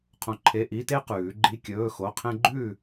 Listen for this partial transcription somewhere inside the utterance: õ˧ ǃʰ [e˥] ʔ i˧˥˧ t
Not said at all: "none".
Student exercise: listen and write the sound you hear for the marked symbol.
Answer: e˧˥˧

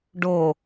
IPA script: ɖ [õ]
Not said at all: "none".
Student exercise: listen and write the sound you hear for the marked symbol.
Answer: o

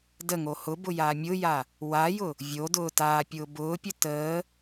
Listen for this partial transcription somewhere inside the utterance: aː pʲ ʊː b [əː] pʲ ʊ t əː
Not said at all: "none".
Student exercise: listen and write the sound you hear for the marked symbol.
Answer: ʊː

